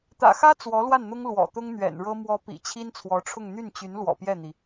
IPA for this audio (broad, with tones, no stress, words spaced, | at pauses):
t̪ä̰˨˩xä˥ t͡swɔ˧˥lwa˥˩nn̪ʊ˥ŋ lwɔ̰˨˩t̪ʊ˥ŋ n̪ɥɛ̰˨˩n ɻɤ˥ mwɔ˧˥ pḭ˨˩t͡ɕʰi˥nt͡sʰwɔ˧˥ʈ͡ʂʰʊ˥˧ŋ n̪y˥˩nt͡ɕy˧˥nlwɔ̰˨˩ pjɛ˥˩n̪i˩